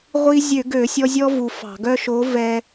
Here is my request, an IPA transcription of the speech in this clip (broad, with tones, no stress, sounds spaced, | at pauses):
ʁʷ i˧ zʲ ø˧˩˧ ɡ ø˧˩˧ sʲ ɔ˧ zʲ ɔ˥ v u˧ f ɑ̤˧˩˧ ɡ œ˥ ʃ o˨˥ v ɛ˧